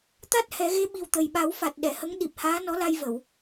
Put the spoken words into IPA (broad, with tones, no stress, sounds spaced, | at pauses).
t̪ a˦˥ t̚ h ɛ˨˩˦ ɣ e˧˥ ɓ i˨˩ w t̪ ə˨˩ j ɓ a˨˩˦ w f a˨˩ t̚ ɗ ɛ˨˩˨ h ə˧˥ ŋ ɗ i˨˩ p̚ h aː˧˥ n ɔ˧˥ l a˧ j v ə˨˩˨ w